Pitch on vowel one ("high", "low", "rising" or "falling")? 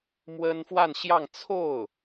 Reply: high